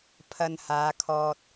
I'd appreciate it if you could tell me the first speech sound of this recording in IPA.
pʰ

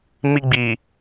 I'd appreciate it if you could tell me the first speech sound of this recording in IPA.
m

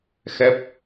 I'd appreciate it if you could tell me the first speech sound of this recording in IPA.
x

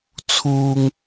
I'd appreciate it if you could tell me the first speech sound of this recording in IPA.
t͡sʰ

